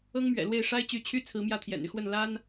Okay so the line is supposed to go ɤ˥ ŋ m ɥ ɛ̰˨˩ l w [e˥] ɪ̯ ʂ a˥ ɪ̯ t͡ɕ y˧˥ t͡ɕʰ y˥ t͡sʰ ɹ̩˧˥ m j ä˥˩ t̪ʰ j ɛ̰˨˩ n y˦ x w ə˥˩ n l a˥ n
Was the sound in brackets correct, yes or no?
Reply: no